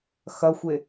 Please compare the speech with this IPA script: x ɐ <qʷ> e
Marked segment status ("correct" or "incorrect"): incorrect